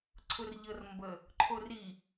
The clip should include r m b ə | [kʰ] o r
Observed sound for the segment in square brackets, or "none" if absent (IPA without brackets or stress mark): ǃʰ